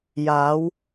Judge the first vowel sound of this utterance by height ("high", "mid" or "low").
low